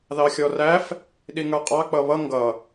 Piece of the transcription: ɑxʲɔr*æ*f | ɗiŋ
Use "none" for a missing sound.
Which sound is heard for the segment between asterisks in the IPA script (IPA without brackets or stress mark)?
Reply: æ